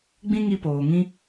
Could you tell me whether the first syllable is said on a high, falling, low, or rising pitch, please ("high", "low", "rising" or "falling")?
high